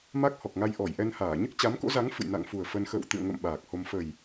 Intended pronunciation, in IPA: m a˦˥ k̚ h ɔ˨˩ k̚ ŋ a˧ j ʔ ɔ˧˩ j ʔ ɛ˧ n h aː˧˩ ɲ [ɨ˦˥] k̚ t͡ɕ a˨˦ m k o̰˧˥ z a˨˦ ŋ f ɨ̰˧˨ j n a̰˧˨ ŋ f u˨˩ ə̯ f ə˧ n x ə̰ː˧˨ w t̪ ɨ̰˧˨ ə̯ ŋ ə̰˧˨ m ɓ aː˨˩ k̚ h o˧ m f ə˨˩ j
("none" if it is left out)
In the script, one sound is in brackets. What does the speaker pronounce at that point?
ɨ˦˥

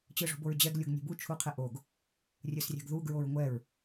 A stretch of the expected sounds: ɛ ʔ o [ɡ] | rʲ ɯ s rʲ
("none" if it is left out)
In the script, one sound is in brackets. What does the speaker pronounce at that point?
ɡ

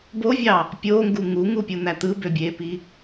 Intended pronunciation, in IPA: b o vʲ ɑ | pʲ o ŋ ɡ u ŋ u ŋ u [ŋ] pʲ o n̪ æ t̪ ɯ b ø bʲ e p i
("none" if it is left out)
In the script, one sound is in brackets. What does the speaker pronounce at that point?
none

